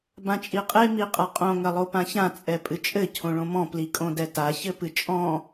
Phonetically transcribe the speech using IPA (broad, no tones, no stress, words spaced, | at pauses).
bãt͡ʃʼiqʼe miqʼaqʼõ ŋɐlˠopãçã t͡sʼɛpʼɨt͡ʃʼɘ cʰõɭõmɔ̃ plikʼõdɛta çɘpɨt͡ʃʼɔ̃